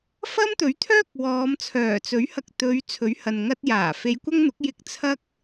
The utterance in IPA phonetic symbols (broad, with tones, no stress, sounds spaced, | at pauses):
f ɐ˥ m t̪ ɵ˨˥ ɥ t̪ʰ œː˥ k̚ w ɔː˨˧ m t͡sʰ œː˨˩ t͡s ɵ˨˥ ɥ h ɐ˧ k̚ t̪ ɵ˨˧ ɥ t͡sʰ ɵ˨˥ ɥ h ɐ˨ n ŋ ɐ˥ t̚ j aː˨˩ f e˨˧ j kʷ ɐ˥ ŋ n̪ ʊ˨˥ k̚ j ɪ˧ k̚ t͡sʰ ɐ˥ k̚